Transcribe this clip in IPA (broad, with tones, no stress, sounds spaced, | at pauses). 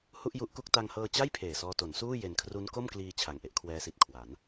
h u˥˩ ʔ j u˦˥ ʔ k u˥˩ k̚ t a˧ ŋ h ɤː˧ t͡ɕ a˥˩ j pʰ eː˨˩ s ɔː˧ t o˩˦ n s uː˥˩ j e˧ n kʰ r u˦˥ n k o˥˩ m k l iː˧ t͡ɕʰ a˨˩ ŋ ʔ e˦˥ ʔ kʰ w ɛː˦˥ s i˨˩ t̚ kʰ w a˩˦ n